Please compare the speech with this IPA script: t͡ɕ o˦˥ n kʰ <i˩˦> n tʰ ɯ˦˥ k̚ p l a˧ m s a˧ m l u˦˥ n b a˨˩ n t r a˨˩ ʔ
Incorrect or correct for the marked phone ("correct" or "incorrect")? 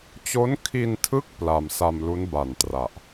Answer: incorrect